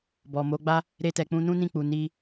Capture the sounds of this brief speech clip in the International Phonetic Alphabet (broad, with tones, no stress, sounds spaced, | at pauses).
b ɔ˨ m o˨˦ ɡ͡b a˦ | ɾ e˧ t ɛ˨ k͡p ũ˧ n ũ˦ n ĩ˦˨ k͡p u˨ n i˧